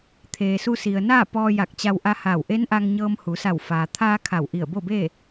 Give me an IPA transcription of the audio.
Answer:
t̪ʰ eː˩ s u˧ s i˩ ə̯ n aː˥˨ p ɔː˧ j a˧˩ k̚ t͡ɕ a˧ w ʔ a˧ h aː˧˩ w ʔ e˧˥ n ʔ a˧ ŋ ɲ ɤː˧ m h u˩˧ s a˧˩ w f aː˩ t̪ʰ aː˧ kʰ a˧˩ w ʔ i˧˩ ə̯ b o˥˨ b eː˥˨

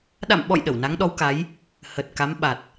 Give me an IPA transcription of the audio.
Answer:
ɗ a̰˧˨ m ɓ ɔ̰˧˨ j ɗ ə˧˩ w n a˨˦ ŋ ɗ ɔ˨˦ w k a˨˦ j | h ə˨˩ t̚ k a˨˦ m ɓ a˨˩ t̚

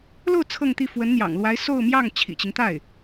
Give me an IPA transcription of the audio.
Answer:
l o˥˧ ʊ̯ t͡sʰ ɤ˥˧ ŋ t̪ i˥˩ f w ə˧˥ n n̪ j ɑ̰˨˩ ŋ l w a˧˥ ɪ̯ s o˥˧ ʊ̯ m j ɑ˥˩ ŋ t͡ɕʰ ḭ˨˩ t͡ɕ i˦ ŋ t̪ a˥˩ ɪ̯

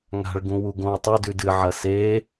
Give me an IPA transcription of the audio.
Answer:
ŋ a̤ ɭ ɡ ũ w u ɡ õ w tˤ ɵ d ʉ d ɨ ʕ ɐ s e

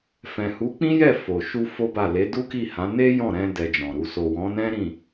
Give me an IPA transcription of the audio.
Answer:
f ɛ̃˨ h u˨˦ k͡p ĩ˦ j ɛ˦˨ f o˨ ʃ u˧ f o˦ b a˦˨ l e˨˦ d u˦ k i˦˨ h ã˨˦ n e˦ j ɔ̃˦˨ ɾ ɛ̃˧ d ɛ˧ d͡ʒ ɔ̃˨ ɾ u˨ s o˨ w ɔ̃˨˦ n ɛ̃˦ ɾ ĩ˦˨

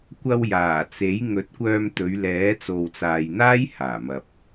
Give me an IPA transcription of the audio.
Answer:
kʷ ɐ˧ w j aː˨˩ t͡s e˨˥ j ŋ ɵ˨˥ t̚ kʷ œː˧ m t̪ ɵ˨˧ ɥ l ɛː˨˥ t͡s o˨ w t͡s aː˨ j n̪ aː˥ j h aː˨˩ m ɐ˨ p̚

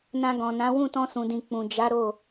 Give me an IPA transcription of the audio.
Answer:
n ã˧ ɡ ɔ̃˨ n ã˨˦ w ũ˦˨ t ɔ̃˧ s ũ˨ d ĩ˨ k͡p ũ˨ d͡ʒ a˨˦ ɾ o˦˨

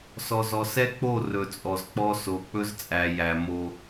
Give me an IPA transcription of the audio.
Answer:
s ɔ˨ z ɔ˨ s ɛ˦ k͡p o˦˨ r ɵ˨ t͡sʼ ɔ˨ z k͡p ɔ˦ s o˨ k͡p ɵ˦ z t͡sʼ æ˨ j æ˨ m o˦

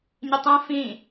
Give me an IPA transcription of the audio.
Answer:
ɲ ɪ tˤ ẽ f ĩ

